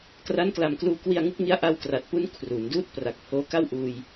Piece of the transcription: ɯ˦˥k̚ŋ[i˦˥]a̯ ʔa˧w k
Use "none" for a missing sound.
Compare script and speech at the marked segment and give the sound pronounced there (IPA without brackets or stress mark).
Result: i˦˥